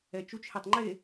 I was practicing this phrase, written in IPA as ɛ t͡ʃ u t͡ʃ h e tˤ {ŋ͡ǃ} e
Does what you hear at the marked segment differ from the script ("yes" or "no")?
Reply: no